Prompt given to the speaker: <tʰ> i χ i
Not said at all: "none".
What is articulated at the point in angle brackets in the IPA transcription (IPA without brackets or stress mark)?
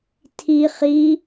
tʰ